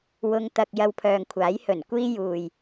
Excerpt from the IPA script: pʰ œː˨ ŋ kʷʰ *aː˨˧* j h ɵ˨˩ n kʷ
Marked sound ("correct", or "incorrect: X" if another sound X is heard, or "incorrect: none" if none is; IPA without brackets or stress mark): incorrect: aː˨˥